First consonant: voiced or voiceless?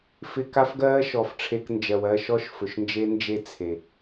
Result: voiceless